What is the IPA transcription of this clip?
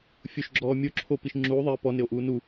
fʲoʃɡ͡ǁɔː mʲo ǁʰopiʃ ŋ͡ǁuː ðˤɪː pɔnɪo̯ʔuː nu

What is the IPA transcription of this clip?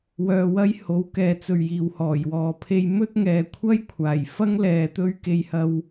wœː˧wɐ˥j ho˨˥wkɛː˨t͡sɵ˨ɥ jiː˨whɔː˨˩jwɔː˨ pʰe˧jmɵ˥t̚ŋɛː˨kʷʰɐ˥j kʷʰaː˨˩j fɐ˥ŋlɛː˨ t̪ɵ˥ɥke˧jhɐ˧w

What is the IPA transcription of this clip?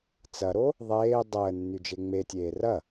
t͡sɐɾo | ðˤeː dˤəːnːy d͡ʒeŋ͡me tʲeːrɐ

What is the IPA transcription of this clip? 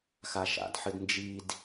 xaʃa̰dħɨd nd͡ʒid

